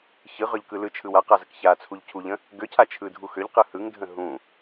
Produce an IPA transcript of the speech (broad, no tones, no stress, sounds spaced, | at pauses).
ç ɯ ʁ ø ʎ k ɯ l ɯ t͡ʃʰ ɯ w a q a z ə k ç a t͡sʰ u ʎ cʰ u ʎ ə̃ | ɡ ø cʰ a t͡ʃʰ ɯ dʱ u x ø ʎ q ɯ h ɯ ŋ dʱ ə̃ ɦ ũ